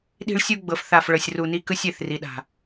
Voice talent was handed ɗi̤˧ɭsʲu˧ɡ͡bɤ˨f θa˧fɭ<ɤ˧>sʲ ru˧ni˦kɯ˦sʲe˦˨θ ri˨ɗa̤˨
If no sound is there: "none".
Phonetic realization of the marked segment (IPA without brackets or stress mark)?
ɤ˧